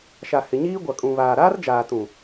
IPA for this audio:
ʃ a˨ h ɪ˨ ɲ iː˦ ɡʷ a˨ kʼ ũ˨ β aː˨ ɾ aː˦ r d͡ʒ aː˨ t ũ˨

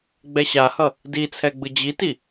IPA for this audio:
ɡ͡b ɛ ɕ a h ʌ | d i t͡sʰ ɛ ɡ͡b ɯ d͡ʑ i t i

